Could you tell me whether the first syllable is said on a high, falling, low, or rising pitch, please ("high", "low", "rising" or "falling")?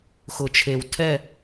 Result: low